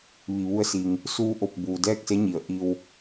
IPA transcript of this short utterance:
ʋi˩ʋu˧ə̯si˩ŋ | suː˧ʔo˧˩p̚ buː˩dɛː˥˨k̚se˧˥ɲi˩˧ə̯ ʔi˧w

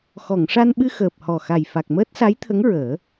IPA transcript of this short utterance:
xɔ˨˩˨ŋʂa˧nɓɨ˧ xəː˨˩p̚hɔ˨˩xa˨˩j fa˨˩k̚məː˦˥t̚sa˧˥jt̪ʰə˧˥ŋ ɹəː˨˩˦

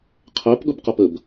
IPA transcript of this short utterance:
qʰæpɠʊbqʌp əb

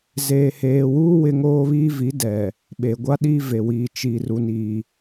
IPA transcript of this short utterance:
zeː˨heː˨wuː˦ wɪ˦ ŋoː˦βiː˦vi˨˦ dɛ˨ | ɓeː˨ɡʷa˦ɗiː˦ ve˨wiː˨ t͡ʃi˨ ru˦ni˦

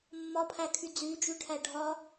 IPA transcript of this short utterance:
mːɒpʰækʰy d͡zyd͡ʒyʈʰæ ɖʱɒ

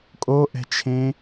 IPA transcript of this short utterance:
kʼoʔɛ̤t͡ʃʰẽ

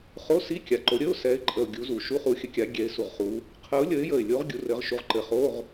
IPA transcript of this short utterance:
χo˧˥˧si˧˥˧ kʲa˨˩ǃo˨˦ ɾʲə˧˥˧ʊ̯sɛ˨˦ɪ̯ ǃʼə˨˩ʊ̯ ɡʲu˨˦zu˨˩ ʃu˧˥˧χu˨˦xʲə˨˦kʲa˨˦ ɡʲɛ˨˦ɪ̯su˨˩ʁχu˨˦ | qʰə˨˦ʊ̯ lʲə˨˦ɪ̯jə˨˩ɪ̯lʲo˨˦ʁ ɡʲu˨˦rɘ˨˦ʁʃu˨˦ʁ ǃɘ˨˩χo˧˥˧ʁ

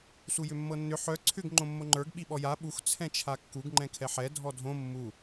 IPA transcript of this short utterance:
sujʏmːɤnːʏ ħœ ǀʰʏɡ ŋ͡ǃõmːoŋ͡ǃə˞ɡ ɓiɓɔja ɓux t͡sʰɛ̃t͡ʃʰakːuɡ ŋ͡ǃɛ̃kʰɛħɛ dʱɔdʱõ mːu

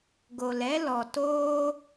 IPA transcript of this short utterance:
ɡo˨lɛ˦ lɔ˨toː˦

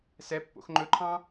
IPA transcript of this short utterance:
sɛ pːo̰xŋ͡ǃɵǃʰɑ̃

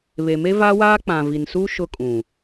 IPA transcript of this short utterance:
βe˨me˦vaː˦waː˦ k͡pã˨vi˨nsu˦ ʃʊ˦kʼũ˨

